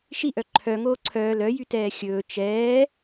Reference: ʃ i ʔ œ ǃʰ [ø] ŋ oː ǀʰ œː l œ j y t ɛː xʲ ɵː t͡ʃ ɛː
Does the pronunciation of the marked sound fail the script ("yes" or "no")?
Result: yes